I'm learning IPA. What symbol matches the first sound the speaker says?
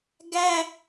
ɡ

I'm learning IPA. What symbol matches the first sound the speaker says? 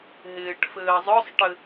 ɦ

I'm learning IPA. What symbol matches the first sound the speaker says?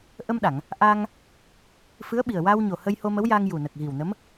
ʔ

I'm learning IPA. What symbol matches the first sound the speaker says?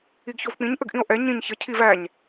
i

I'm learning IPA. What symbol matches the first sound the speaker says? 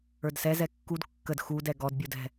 ə˞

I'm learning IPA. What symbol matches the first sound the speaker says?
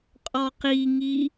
qʼ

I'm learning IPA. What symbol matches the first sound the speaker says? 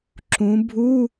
ǁ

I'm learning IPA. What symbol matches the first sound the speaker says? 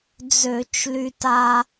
d͡z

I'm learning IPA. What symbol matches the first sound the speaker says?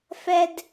f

